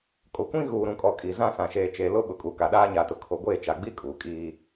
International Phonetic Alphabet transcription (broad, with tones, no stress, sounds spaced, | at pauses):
kʼ o˨ kʷ ĩ˦ ɣ uː˨ ɾ ũ˨ kʼ ɔ˨ kʼ i˨ z ã˦ s ã˨ ʃ eː˨ t͡ʃ e˨ l ʊ˦ ɓ ʊ˨ kʼ u˨ k a˨ ɗ aː˦ ɲ a˨ t ʊ˨ kʰ o˨ ɡʷ eː˦˨ t͡ʃ a˨ ɡ͡b i˦ kʼ uː˨ kʼ iː˦